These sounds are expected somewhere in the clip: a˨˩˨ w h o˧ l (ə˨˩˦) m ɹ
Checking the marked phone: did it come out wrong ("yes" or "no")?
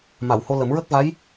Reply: no